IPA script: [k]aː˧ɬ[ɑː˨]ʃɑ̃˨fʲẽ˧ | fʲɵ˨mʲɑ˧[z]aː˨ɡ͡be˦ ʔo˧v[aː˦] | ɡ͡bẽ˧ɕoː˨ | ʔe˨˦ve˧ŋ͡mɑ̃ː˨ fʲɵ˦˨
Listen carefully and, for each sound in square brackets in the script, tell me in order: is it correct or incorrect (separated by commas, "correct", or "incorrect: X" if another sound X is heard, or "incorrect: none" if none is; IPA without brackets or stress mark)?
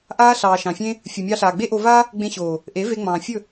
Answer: incorrect: ʔ, correct, incorrect: ɬ, correct